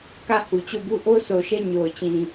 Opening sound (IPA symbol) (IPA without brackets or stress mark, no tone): k